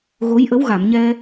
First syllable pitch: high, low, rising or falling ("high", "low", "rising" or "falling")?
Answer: rising